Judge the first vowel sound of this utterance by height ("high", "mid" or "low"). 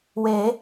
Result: mid